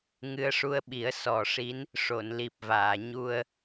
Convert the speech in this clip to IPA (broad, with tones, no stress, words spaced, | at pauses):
ŋɨ˧ə̯ʂu˧ə̯ɓi˨˩˦ə̯ sɔ˨˩ʂi˧˥n | ʂo˨˩˨nli˨˩p̚vaː˨˩˨ ɲu˧ə̯